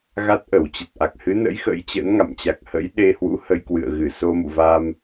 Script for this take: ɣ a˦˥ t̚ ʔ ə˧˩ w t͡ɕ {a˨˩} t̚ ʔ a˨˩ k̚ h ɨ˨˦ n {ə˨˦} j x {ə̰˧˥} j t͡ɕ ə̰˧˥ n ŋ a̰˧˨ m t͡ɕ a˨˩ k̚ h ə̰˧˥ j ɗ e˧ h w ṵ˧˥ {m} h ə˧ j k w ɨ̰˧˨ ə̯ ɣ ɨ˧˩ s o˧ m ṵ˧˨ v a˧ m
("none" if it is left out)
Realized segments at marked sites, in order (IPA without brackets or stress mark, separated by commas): ə˨˩, ə̰˧˥, ə̰˧˥, none